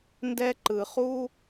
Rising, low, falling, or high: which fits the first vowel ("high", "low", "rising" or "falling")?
high